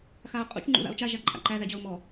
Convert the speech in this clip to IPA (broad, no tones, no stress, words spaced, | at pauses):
xaʊ̯qʼṵt͡ʃ ŋ͡ǃṵða̰ʊ̯t͡ʃa ʒaǃʼa̰ǃæ ðæd͡ʑɒʊ̯mɔ